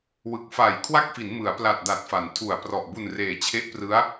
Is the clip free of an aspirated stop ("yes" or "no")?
no